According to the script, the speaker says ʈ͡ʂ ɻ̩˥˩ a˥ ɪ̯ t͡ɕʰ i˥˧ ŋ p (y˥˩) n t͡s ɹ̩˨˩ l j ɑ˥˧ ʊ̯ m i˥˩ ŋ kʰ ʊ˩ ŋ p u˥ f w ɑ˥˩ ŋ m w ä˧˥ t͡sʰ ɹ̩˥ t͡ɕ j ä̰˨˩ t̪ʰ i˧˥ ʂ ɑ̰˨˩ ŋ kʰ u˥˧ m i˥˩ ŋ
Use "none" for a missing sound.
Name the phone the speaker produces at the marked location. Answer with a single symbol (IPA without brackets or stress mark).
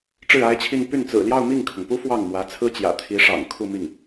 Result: y˥˩